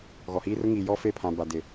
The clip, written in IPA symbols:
ɣ ɔ˨ h iː˦ r ʊ˦ ŋ iː˨ j ɔ˦ f e˦˨ pʰ ã˨ b a˨ d ɪ˨

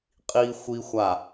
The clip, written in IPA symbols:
qʼ iː˦ xʷ i˦ xʷ a˦˨

